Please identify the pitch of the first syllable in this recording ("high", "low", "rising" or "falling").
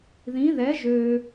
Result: rising